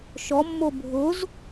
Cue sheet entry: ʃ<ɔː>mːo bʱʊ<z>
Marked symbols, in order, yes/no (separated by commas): no, yes